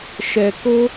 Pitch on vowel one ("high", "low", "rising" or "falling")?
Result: low